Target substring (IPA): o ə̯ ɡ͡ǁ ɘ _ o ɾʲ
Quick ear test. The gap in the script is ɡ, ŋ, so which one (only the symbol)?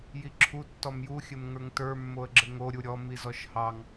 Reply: ŋ